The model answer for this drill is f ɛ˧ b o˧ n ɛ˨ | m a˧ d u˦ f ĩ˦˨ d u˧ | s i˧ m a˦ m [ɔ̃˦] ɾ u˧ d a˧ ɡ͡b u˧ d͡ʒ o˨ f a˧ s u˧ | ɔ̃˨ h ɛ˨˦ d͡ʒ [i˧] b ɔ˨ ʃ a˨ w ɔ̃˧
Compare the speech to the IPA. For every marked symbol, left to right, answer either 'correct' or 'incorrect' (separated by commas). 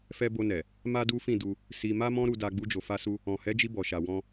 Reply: correct, correct